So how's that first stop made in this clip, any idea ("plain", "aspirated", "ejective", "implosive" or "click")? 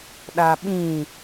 implosive